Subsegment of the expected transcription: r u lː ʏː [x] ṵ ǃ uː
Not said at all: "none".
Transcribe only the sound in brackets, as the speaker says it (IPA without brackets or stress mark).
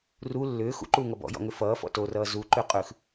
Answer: x